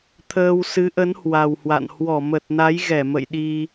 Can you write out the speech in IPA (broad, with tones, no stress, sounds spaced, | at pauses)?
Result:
t̪ʰ əː˧ w s ɨ˨˦ ʔ ə˨˦ n h w a˨˩ w h w a̰˧˨ n h w ɔ˧˩ m ə˨˩ t̚ n a˨˦ j ɣ ɛ˧˩ m ə̰˧˨ j ɗ i˧